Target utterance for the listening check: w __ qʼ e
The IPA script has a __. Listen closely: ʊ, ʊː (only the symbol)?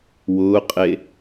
ʊː